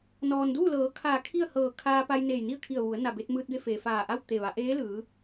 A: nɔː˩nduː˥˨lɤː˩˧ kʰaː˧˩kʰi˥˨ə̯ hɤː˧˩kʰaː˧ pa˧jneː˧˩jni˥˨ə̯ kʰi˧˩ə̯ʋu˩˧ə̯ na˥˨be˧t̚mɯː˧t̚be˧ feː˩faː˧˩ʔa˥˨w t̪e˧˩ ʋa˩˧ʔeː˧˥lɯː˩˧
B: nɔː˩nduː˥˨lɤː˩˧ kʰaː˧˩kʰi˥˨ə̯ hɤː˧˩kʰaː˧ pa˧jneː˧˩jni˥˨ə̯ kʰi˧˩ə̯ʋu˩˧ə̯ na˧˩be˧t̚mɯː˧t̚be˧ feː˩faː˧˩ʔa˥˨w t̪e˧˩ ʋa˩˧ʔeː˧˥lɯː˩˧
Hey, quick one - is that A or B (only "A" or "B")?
B